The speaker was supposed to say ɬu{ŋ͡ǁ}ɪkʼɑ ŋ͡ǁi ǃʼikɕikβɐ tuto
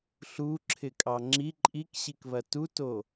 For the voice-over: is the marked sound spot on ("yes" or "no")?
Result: no